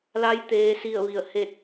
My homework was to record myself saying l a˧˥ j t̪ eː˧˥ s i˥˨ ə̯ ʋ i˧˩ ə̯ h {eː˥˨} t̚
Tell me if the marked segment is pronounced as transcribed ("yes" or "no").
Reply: no